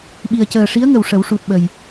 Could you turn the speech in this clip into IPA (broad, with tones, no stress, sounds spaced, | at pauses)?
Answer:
ɓ i˨˩ ə̯ c əː˨˩ ʂ i˧˥ ə̯ ŋ ə˨˩ w ʂ ə˨˩˦ w ʂ u˨˩ t̚ ɓ ə˨˩ j